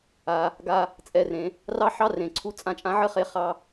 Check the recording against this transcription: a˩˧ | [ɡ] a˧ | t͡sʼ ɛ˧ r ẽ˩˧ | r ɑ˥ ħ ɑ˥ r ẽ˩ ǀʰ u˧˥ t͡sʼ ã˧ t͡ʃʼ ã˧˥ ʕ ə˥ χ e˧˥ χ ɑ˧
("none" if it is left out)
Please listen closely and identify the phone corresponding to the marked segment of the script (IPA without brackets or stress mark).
ɡ